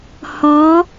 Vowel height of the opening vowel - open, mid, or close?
mid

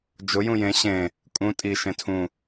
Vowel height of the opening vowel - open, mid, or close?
close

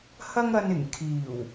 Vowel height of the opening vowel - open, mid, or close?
open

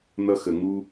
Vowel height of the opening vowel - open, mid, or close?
mid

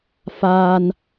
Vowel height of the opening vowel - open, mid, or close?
open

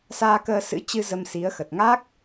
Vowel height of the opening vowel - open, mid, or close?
open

